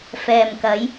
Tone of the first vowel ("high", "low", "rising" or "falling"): low